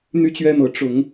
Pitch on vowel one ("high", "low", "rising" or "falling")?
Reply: high